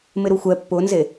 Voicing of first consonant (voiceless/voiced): voiced